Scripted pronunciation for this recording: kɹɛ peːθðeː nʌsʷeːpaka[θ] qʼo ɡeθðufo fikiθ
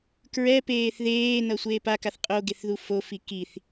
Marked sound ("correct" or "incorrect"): correct